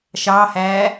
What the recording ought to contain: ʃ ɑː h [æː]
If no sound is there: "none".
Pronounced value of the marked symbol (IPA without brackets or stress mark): æː